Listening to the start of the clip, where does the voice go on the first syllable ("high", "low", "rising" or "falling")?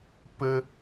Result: high